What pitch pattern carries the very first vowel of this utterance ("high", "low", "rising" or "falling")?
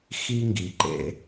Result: high